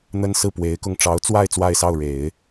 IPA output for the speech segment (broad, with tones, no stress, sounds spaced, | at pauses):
n̪ ə˥ n s ɹ̩˥˩ p w e˧˥ ɪ̯ k ʊ˥˩ ŋ ʈ͡ʂ ɑ˧˥ ʊ̯ t͡s w a˥˧ ɪ̯ t͡s w a˥˧ ɪ̯ s ɑ˥˩ ʊ̯ ɻ e˨˩˦ ɪ̯